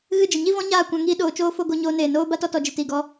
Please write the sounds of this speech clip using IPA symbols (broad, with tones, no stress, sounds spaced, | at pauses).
ɣ ɨ˦˨ d͡ʒ ə˨ ɲ i˦ v ɔ̃˦ ɲ aː˦˨ kʷ ã˧ ŋ iː˧ ɗ oː˨ t͡ʃ oː˦˨ f o˧ ɡ o˧ ɲ oː˧ n eː˨ n oː˦ b a˦ t ɔ˧ t ɔ˨ d͡ʒ i˨ t iː˨ ɡ ɔ˧